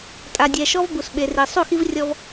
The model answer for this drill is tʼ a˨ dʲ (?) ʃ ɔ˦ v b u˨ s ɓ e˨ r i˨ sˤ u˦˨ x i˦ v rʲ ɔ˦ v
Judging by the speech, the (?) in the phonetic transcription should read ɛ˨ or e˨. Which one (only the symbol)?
ɛ˨